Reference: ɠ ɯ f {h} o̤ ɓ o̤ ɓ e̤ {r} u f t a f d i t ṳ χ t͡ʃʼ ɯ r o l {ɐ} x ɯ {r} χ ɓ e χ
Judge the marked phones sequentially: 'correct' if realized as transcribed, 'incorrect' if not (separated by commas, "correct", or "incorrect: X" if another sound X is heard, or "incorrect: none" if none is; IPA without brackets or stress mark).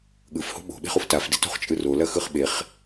correct, incorrect: χ, correct, incorrect: none